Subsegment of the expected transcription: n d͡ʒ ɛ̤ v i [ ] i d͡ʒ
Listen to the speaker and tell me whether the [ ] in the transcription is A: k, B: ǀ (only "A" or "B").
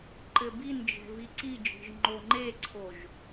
B